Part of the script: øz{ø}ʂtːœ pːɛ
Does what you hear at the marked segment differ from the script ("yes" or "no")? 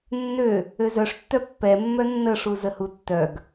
yes